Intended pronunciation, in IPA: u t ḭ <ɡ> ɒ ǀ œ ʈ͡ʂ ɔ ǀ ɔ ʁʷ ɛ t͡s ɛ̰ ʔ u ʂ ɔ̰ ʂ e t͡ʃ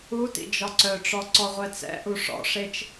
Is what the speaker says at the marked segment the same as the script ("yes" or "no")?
no